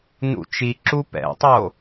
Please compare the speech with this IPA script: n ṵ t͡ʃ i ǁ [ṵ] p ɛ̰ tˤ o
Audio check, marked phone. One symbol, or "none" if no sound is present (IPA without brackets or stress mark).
u